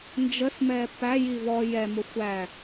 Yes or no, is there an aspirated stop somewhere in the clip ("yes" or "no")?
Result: no